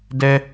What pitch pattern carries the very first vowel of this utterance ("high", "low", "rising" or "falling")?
high